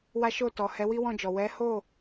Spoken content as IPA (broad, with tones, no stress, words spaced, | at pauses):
wa˦ ʃo˦˨tɔ˨ hɛ˨˦wi˦wɔ̃˦˨d͡ʒɔ˨ wɛ˨˦ho˦˨